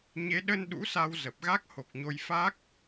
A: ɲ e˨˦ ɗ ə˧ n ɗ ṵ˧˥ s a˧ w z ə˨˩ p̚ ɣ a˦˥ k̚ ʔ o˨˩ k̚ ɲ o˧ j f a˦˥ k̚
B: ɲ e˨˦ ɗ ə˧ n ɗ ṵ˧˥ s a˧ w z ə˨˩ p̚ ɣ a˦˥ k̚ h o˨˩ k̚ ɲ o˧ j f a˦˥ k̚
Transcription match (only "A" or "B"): B